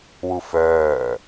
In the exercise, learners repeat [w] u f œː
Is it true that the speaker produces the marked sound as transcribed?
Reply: yes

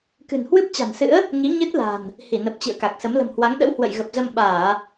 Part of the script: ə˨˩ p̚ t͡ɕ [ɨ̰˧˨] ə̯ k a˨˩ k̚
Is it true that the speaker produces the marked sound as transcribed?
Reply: yes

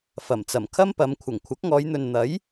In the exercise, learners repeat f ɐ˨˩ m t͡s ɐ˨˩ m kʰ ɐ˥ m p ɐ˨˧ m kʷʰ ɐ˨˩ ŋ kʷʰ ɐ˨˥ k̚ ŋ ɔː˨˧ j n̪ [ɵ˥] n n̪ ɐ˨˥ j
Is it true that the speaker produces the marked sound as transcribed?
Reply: no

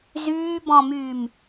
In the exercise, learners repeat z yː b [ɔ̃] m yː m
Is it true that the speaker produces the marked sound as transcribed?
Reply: yes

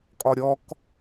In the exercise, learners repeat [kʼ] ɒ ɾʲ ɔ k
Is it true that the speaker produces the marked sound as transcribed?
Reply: yes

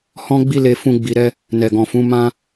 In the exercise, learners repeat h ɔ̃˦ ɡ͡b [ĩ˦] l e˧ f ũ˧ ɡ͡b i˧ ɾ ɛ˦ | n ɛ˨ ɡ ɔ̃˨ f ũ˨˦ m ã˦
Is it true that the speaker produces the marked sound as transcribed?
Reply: no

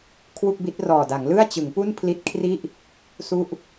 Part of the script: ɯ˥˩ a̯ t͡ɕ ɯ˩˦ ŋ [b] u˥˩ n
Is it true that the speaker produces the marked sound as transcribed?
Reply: no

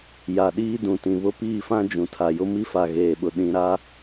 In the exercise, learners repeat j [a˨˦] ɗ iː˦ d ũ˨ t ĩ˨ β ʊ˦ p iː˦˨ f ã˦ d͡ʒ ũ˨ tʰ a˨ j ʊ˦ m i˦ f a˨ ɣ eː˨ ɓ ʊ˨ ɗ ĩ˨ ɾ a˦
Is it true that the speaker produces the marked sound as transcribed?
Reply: no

